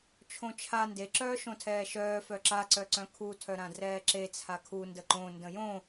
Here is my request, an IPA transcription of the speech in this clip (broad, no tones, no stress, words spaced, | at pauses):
t͡ʃʰõt͡ʃʰa ndeǁœː ʃõtʰɛːʃœː fœǁaǀœǀœ̃ kʰutʰœ ɾãdrɛːǁe t͡sʰakʰundə ǃõ ndə̃jõ